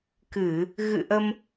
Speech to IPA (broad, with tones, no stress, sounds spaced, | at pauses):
k ɨ˧˩˨ | ɣ ɨ̰˧˨ ʔ ə˧ m